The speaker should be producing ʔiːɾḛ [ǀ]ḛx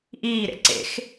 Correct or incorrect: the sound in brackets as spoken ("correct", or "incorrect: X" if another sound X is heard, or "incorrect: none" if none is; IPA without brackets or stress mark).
correct